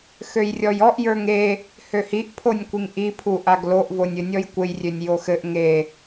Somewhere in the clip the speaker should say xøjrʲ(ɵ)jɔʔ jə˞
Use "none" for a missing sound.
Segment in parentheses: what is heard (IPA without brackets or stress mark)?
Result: ɔ